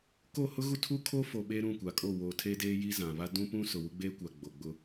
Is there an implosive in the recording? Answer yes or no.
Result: yes